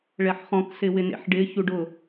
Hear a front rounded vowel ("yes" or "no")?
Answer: no